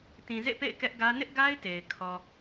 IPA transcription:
tĩ˨zḛ˦˨pḛ˦˨ɪ̯ kɛ˦ʔɡä˦ nɪ˦ʔɡa˦ɪ̯te˨ɪ̯ kʰɔ˨

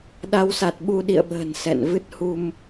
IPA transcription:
ɗa˨˦wsa˨˩t̚ɓu˧ ɗḭ˧˨ə̯ɓə̤ː˨˩n sɛ̰˧˨n vɨ˦˥t̚hu˧m

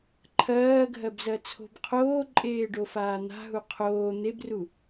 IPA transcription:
ǃʰɜː ɡʱɜbzɜt͡sʰo̤b qʰoːǃʼeːɖofaː n̪a̤ɦu qʰoː n̪ebru

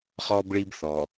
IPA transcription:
χɔː˦bɭi˦b θɔ˨

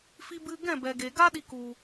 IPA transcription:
fi˧bɨ˧ ɡɛ̃˦˨bɛ˨ɡe˨ɡa˦ ɗi˧ ku˨

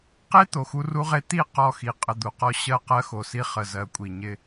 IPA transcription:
qe˦ t̪o˨xu˦ru˦ʁe˦ t̪i˦˨ qɔ˦˨xi˨ qʼə˨d̪u˨qɔ˦ ɕɜ˦ qɜ˦xo˨si˦ χə˨zɜ˨kʷʼi˨ ɲɪ˦

